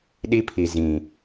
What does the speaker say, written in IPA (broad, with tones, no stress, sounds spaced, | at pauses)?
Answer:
ɗ i˦ pʰ i˨ z ĩ˨